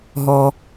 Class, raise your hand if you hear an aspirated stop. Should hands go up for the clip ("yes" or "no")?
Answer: no